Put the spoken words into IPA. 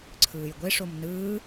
ǀʰ ɯː j ɡʷ e ʂ o m n ɯː

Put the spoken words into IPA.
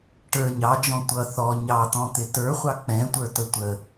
ʈ ə˞ ɲ ɑ d͡ʒ ɔ̃ tʷ ʌ θ ɔ ɲ ɑ t̪ ɔ̃ t̪ ɪ t ə˞ χʷ ɑ k͡p ɛ̃ tʷ ə˞ t ə tʷ ə

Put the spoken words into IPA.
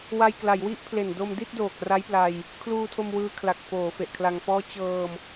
w a˧ j k l a˩˦ j w i˦˥ ʔ pʰ l e˨˩ n d o˧ m d i˥˩ t̚ d oː˨˩ k̚ r a˦˥ j p l a˧ j | kʰ l uː˧ tʰ o˧ m w ɯː˧ kʰ l a˨˩ k̚ f oː˩˦ f e˨˩ ʔ kʰ l a˧ ŋ f ɔː˥˩ t͡ɕ ɤː˧ m

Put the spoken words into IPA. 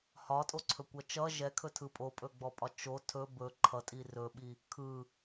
h ɒ tʼ o ǀʰ ɵ kʷ ʌ t͡ʃ ʌ ʒ ɛ kʰ ɵ tʰ ɯ pʼ o pʼ ɵ ɡ͡b ɔ pʼ ɒ t͡ʃ o tʰ ɵ b ɵ ǃʰ ʌ tʼ i r ɵ ɓ i | kʰ ɯ

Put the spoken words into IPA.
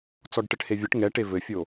t͡s ɔ ɖ ʈ ɘ ʈ h e vʲ ə ʈ ŋ ɛ ʈ e v ɘ fʲ o

